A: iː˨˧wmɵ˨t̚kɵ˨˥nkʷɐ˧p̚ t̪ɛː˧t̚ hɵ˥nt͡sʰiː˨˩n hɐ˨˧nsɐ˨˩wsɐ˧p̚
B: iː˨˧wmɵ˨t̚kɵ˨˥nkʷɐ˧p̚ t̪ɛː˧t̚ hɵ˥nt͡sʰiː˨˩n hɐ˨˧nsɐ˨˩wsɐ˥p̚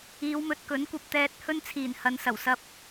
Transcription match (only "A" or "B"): A